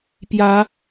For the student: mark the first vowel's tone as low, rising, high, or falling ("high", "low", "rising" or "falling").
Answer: rising